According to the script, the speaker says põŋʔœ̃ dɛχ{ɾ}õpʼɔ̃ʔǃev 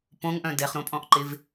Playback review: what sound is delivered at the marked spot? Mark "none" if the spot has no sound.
ɾ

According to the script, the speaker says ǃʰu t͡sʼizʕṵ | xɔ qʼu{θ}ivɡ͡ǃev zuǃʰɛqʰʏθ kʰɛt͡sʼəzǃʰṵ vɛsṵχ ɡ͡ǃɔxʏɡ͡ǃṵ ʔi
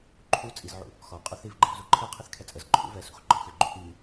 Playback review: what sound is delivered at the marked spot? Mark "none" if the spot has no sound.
θ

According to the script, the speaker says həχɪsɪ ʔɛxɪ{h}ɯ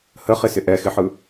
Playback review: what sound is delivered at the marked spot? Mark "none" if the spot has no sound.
ħ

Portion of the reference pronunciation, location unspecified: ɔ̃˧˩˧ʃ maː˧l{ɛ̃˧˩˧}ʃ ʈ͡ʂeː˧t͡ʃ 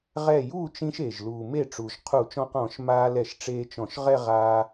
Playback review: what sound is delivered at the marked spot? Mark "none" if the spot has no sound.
ɛ˧˩˧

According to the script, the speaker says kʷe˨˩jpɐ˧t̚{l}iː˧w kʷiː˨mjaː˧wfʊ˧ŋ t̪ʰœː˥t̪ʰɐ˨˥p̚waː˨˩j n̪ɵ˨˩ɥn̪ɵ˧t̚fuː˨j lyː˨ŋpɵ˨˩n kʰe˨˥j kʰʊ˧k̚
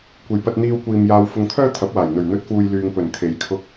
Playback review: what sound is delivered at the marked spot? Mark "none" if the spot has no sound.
n̪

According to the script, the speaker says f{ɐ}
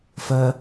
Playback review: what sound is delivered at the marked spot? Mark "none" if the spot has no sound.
ɐ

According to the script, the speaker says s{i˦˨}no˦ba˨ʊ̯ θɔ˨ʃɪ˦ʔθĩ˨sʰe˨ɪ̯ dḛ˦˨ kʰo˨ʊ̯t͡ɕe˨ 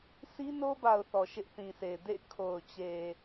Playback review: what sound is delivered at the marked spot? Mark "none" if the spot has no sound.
i˦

